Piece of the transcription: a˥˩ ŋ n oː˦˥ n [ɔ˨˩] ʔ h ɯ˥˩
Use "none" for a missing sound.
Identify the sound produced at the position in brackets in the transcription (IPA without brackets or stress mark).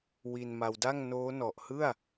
ɔ˨˩